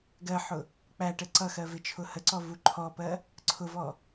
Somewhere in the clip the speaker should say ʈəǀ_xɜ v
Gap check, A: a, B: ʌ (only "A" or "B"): B